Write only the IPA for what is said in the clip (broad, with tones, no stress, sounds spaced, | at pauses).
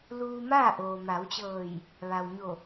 l uː˧ m aː˥˨ ʔ oː˩ m a˩˧ w t͡ɕ ɤː˧˩ j | ʋ a˩ w ɲ o˧˩